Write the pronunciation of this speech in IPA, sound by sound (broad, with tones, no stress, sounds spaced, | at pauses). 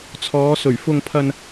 t͡sʰ ɔː˨˧ s ɵ˨˩ ɥ f ʊ˧ ŋ pʰ ɐ˧ n